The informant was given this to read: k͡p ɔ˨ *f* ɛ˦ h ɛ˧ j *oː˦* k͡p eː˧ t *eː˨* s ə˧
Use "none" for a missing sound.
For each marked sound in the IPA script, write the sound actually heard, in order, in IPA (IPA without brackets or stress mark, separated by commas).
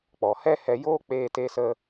h, oː˦, eː˧